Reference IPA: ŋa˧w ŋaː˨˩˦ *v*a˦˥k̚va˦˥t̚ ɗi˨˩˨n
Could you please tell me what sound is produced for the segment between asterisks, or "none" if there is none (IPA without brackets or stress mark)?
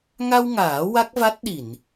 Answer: w